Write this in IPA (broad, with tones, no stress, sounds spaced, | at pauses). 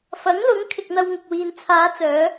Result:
f ɐ˨˥ ŋ l ʊ˨˥ ŋ kʰ ɪ˨ k̚ n̪ ɐ˧ w ŋ ɪ˨ k̚ w iː˨ n t͡sʰ aː˨˧ t͡s œː˨˧